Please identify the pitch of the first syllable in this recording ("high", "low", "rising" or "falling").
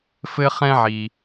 high